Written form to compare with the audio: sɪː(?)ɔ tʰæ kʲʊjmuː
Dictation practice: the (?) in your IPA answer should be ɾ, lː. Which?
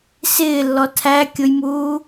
lː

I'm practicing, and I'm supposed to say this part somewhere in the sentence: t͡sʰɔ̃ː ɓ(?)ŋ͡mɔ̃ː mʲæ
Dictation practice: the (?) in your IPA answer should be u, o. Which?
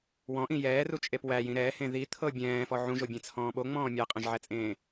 o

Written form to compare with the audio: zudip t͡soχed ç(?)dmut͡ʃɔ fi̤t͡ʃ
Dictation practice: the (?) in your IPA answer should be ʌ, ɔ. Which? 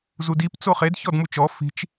ɔ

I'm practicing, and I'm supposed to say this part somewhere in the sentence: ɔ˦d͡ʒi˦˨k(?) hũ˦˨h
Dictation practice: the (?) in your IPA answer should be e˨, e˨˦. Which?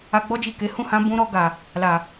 e˨˦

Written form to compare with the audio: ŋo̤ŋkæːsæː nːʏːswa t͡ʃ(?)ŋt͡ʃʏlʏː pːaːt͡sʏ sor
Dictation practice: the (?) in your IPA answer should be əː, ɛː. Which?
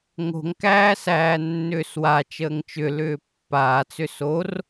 əː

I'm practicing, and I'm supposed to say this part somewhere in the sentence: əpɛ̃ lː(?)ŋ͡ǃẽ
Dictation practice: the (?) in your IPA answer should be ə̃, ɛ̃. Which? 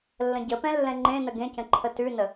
ɛ̃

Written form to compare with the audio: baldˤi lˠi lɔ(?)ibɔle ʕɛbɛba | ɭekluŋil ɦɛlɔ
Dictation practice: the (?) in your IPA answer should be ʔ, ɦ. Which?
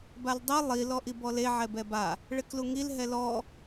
ʔ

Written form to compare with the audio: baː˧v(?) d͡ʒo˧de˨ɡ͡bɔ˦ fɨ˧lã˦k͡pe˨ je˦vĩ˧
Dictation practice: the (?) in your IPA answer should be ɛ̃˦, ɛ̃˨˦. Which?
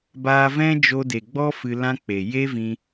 ɛ̃˦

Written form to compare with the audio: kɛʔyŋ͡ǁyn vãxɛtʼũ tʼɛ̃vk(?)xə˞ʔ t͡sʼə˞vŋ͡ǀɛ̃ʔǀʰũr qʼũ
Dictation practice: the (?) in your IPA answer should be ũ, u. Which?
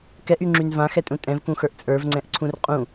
ũ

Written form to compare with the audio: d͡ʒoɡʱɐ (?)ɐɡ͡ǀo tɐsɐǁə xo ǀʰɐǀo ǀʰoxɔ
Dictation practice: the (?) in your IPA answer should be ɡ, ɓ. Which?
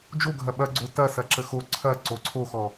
ɓ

